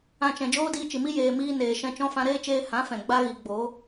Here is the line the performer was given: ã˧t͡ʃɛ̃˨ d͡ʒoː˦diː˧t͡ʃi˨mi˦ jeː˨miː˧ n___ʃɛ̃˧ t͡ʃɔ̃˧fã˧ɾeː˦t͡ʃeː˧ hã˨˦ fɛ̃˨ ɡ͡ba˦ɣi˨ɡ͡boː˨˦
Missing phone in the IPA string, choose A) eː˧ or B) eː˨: B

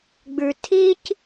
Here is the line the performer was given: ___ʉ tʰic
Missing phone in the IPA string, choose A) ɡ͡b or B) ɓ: A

